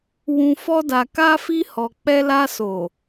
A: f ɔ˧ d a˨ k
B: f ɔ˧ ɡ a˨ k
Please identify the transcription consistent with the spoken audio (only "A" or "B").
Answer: A